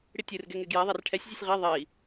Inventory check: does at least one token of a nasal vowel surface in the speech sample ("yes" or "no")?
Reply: no